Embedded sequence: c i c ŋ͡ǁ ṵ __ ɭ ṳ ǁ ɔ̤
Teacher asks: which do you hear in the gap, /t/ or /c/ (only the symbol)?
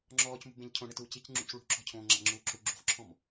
c